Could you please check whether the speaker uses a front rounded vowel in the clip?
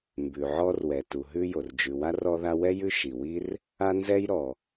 no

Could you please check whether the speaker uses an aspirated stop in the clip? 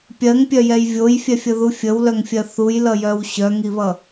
no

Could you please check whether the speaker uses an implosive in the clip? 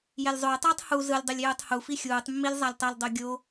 no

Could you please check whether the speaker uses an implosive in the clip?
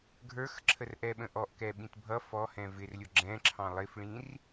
yes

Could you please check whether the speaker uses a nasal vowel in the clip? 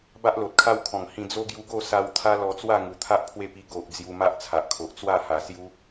yes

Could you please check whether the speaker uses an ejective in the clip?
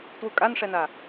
yes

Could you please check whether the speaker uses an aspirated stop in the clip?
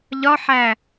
no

